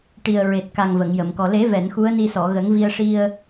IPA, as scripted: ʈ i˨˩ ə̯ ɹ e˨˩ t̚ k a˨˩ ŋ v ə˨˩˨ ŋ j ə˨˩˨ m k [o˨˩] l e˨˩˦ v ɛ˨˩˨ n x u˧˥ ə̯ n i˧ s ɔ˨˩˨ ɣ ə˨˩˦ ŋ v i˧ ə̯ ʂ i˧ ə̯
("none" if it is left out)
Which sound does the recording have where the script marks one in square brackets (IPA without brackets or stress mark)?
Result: ɔ˨˩